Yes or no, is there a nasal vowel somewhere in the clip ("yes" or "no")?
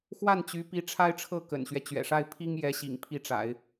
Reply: no